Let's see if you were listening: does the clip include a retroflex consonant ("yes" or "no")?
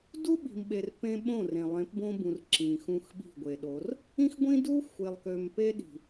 no